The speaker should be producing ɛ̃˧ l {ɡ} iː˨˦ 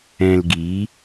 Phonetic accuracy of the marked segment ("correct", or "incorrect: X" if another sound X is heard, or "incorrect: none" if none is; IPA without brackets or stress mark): correct